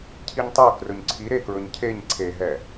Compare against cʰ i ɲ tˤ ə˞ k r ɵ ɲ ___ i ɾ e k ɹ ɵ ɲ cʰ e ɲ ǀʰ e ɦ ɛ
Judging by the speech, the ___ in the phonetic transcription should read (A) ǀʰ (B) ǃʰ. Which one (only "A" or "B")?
A